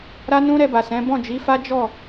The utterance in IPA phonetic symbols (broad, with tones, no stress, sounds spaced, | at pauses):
ɾ a˦ n ũ˦ ɾ ɛ˧ b a˨ s ɛ̃˨˦ b ɔ̃˦˨ d͡ʒ i˨˦ f a˦ d͡ʒ ɔ˦˨